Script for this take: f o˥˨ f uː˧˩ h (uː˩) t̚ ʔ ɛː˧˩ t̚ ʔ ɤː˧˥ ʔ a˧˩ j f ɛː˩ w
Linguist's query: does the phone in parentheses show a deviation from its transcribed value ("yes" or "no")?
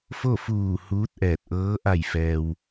yes